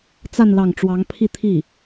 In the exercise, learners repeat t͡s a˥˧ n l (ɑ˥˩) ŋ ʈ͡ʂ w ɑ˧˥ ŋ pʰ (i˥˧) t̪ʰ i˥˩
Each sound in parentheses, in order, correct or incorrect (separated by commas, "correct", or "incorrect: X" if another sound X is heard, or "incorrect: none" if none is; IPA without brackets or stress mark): correct, correct